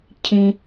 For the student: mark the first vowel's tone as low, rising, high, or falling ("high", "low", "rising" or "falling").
high